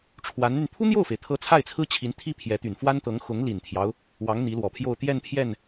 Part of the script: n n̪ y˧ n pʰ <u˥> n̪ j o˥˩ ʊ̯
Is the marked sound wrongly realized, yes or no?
no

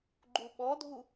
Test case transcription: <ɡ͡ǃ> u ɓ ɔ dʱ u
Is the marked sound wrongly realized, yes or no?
no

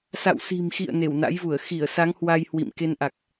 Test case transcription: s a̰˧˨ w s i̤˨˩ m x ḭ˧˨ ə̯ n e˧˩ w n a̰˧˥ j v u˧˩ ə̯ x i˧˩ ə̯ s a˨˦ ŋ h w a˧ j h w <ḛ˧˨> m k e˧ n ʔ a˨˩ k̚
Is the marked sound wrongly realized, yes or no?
yes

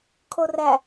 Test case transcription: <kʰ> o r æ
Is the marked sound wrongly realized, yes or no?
no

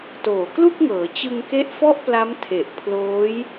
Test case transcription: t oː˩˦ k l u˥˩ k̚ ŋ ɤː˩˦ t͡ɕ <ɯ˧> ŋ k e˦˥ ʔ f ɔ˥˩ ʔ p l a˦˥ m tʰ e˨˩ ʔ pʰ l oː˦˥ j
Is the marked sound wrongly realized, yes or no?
no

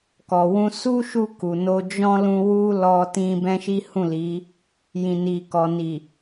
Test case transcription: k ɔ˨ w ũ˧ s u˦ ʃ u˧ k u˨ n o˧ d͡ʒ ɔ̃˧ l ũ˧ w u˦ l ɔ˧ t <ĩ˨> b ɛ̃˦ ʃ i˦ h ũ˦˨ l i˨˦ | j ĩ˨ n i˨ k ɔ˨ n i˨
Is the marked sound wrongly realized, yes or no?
yes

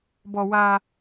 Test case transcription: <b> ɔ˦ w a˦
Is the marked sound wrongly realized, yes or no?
no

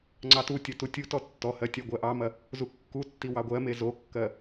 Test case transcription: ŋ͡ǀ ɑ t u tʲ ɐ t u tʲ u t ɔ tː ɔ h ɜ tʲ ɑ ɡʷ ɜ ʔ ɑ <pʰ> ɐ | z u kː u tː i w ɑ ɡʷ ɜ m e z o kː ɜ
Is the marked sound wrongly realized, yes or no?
yes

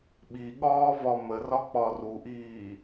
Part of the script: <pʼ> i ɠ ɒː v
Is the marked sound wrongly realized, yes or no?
yes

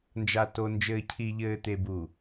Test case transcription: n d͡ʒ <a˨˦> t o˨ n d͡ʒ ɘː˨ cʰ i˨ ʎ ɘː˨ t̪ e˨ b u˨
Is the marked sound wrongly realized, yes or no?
yes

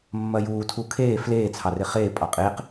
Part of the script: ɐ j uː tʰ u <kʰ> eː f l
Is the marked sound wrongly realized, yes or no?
no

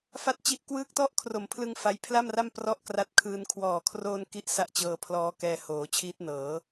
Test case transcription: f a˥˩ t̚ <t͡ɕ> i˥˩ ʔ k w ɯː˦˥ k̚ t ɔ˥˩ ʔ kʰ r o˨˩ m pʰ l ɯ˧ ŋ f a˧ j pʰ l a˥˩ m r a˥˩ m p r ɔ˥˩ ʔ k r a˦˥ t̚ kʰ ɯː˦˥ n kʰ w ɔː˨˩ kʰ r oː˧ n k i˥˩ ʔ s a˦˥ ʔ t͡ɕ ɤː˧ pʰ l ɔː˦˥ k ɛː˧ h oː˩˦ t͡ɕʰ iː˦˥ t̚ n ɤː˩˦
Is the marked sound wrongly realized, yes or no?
no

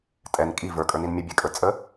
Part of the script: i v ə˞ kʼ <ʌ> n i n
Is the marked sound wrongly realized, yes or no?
yes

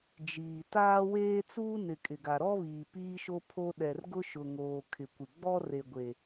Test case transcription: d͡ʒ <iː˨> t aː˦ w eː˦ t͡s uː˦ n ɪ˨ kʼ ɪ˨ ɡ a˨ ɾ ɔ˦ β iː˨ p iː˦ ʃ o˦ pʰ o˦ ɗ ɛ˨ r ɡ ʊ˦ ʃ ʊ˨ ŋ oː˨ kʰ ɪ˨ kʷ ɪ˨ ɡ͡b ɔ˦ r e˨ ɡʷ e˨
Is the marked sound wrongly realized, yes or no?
no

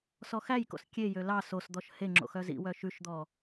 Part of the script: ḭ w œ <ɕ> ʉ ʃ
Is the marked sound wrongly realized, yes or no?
yes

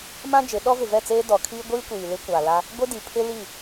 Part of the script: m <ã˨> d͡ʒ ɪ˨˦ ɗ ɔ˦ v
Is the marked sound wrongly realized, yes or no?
yes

